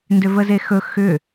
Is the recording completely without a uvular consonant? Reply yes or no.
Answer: yes